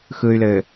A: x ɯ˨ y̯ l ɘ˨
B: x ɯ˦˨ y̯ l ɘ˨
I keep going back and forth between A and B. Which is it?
A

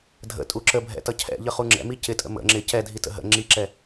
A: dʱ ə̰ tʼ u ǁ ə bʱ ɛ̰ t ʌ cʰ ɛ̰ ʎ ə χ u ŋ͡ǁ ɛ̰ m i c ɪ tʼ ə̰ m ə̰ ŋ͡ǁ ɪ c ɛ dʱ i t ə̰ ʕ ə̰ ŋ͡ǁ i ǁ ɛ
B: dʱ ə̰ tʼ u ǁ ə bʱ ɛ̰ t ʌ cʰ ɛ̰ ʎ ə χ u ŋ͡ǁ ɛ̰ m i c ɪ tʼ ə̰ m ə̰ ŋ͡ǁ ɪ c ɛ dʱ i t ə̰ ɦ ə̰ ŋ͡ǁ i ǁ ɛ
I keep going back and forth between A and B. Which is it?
B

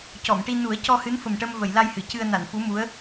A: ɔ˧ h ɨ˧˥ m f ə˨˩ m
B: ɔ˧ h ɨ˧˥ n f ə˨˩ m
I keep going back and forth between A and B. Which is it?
B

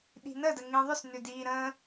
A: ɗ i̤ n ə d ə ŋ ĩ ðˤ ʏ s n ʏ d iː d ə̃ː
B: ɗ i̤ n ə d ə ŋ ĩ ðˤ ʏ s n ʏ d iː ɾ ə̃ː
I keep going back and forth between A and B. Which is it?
B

